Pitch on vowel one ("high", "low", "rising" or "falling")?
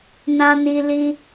high